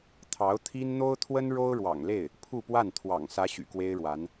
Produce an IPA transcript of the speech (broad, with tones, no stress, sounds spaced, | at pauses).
t̪ʰ ɑ˧˥ ʊ̯ t̪ʰ i˥ n n̪ o˥ ʊ̯ t̪ʰ w ə˥ n ɻ o˥ ʊ̯ ɻ w ɑ̰˨˩ ŋ l e˥˩ ɪ̯ | pʰ u˥˧ p w a˥˩ n t̪ʰ w ɑ̰˨˩ ŋ s ä˧˥ ɕ y̰˨˩ k w e˥ ɪ̯ ɻ w a˧˥ n